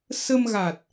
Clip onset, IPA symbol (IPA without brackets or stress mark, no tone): s